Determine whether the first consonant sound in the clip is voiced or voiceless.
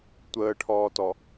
voiceless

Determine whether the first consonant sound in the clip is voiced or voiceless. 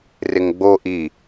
voiced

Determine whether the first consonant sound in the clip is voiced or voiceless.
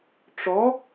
voiceless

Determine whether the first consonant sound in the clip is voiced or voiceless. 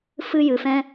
voiceless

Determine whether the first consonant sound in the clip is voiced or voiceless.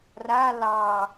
voiced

